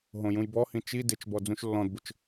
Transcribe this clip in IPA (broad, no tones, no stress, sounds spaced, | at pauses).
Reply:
ɦ õ j ũ j b ɔ h ĩ t͡ʃ i d ɪ t͡ʃ b ɔ d͡z ũ ʃ lː ɔ̃ d b ʊ t͡ʃ